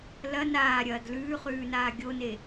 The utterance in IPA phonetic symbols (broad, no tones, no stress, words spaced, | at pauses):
lɐ naːɾʲɐːd lʉːχʉːnaː ɡʲone